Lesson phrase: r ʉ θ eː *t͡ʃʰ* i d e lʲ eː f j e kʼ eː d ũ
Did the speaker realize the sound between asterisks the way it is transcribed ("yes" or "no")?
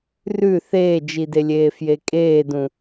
no